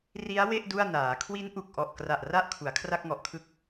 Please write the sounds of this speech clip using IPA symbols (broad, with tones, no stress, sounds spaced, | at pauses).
r i˦˥ a̯ w e˥˩ ʔ d u˥˩ a̯ n aː˩˦ kʰ w i˦˥ n ʔ u˨˩ k̚ ʔ ɔ˨˩ ʔ k r a˨˩ ʔ r a˥˩ ʔ kʰ u˩˦ a̯ kʰ r a˥˩ k̚ ŋ ɔ˨˩ ʔ kʰ ɯ˥˩ k̚